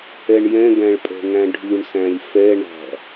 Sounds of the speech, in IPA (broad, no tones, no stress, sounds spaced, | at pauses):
ɛ ɳ j ɛ̃ ɡ æ̃ ɭ pʼ ɛ̤ ŋ æ̃ ɖʱ ʉ ɳ s æ̃ lʲ f ɛ ɳ æ̤